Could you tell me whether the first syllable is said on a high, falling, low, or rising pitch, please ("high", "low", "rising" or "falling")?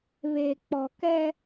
low